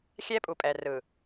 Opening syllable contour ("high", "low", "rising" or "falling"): high